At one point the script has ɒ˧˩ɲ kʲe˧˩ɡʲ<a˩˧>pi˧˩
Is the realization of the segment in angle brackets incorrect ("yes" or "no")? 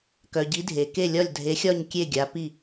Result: no